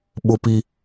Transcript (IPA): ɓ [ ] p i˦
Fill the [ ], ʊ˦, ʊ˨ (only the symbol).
ʊ˦